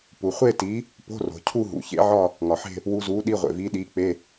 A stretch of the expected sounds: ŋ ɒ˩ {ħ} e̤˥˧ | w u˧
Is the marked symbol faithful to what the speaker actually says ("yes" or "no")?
yes